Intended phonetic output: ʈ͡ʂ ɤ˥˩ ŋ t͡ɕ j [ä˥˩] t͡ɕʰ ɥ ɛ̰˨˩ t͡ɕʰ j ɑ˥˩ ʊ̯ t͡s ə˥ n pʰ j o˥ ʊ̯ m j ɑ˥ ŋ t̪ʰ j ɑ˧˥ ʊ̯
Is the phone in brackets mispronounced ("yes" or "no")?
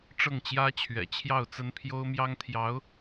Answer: yes